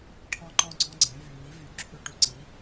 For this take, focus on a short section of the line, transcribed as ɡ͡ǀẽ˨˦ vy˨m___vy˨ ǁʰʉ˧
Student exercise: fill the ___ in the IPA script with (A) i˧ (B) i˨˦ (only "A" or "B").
B